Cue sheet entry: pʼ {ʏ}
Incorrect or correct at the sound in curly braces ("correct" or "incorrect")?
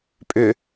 correct